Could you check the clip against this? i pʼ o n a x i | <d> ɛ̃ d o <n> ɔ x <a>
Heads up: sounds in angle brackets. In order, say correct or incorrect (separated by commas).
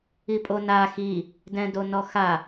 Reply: correct, correct, correct